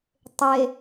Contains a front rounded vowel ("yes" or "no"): no